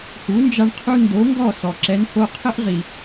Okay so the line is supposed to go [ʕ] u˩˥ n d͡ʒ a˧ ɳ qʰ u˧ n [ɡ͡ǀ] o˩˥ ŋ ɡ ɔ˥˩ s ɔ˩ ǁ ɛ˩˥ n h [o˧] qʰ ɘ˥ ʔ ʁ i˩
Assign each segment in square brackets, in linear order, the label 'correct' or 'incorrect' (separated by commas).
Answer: incorrect, incorrect, correct